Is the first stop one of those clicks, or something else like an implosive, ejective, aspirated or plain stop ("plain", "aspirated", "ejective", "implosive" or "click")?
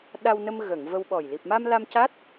implosive